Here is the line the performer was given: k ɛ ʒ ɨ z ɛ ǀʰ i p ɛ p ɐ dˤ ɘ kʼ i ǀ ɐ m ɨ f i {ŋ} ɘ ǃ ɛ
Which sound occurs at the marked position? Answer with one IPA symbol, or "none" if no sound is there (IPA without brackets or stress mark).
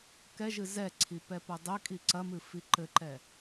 ǃ